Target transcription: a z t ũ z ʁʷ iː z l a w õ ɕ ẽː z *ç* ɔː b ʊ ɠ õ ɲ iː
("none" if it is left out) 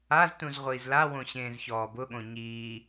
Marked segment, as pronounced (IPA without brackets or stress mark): ç